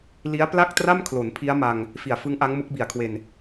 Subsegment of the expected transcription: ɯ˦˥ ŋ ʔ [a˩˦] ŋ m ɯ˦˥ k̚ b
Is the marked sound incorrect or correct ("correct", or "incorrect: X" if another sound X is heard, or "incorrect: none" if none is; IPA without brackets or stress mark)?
incorrect: a˦˥